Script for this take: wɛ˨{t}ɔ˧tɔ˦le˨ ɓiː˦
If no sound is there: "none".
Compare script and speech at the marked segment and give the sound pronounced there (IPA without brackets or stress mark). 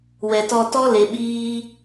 t